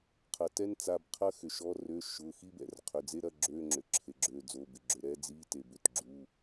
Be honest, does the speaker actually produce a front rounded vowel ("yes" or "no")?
yes